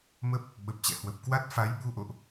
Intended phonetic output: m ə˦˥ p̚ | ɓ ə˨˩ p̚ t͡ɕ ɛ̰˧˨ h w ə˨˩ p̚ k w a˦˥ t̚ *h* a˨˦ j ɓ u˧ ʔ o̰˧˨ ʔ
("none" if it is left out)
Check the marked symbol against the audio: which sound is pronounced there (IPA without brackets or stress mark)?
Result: f